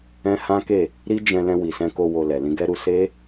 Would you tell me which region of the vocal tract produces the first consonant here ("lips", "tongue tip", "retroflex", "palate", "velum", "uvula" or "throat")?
throat